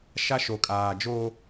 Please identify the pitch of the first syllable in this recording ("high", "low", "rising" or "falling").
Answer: high